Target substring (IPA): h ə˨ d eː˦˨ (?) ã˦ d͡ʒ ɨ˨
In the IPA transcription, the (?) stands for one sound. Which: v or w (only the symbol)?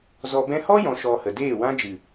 w